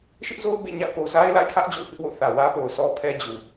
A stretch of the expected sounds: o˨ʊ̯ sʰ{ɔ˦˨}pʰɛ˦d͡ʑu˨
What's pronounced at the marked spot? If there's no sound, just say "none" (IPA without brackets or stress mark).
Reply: ɔ˦